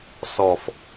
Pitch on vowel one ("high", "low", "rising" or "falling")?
low